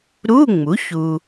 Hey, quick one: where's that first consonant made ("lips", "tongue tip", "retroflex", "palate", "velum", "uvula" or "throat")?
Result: tongue tip